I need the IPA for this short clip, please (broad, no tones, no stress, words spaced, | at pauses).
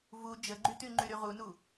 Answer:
vu d͡ʒəɡ͡ǃyty ŋ͡ǃyɾyʁunu